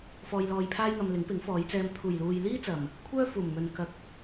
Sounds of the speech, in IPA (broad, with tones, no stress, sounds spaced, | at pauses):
f ɔː˧ j l ɔː˧ j pʰ aː˥ j ŋ ɐ˧ m l ɪ˨˥ ŋ p ɪ˨˥ ŋ f ɔː˨˧ j t͡s ɛː˧ m t̪ʰ uː˨˩ j l uː˨ j l iː˥ t͡s ɐ˨˩ m | kʷʰ œː˥ f uː˨˩ m ŋ ɵ˨ n k ɐ˨ k̚